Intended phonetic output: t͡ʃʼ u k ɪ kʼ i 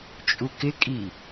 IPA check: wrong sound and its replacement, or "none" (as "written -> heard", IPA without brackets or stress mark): none